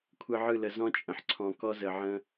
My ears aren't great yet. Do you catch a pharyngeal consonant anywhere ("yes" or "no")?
yes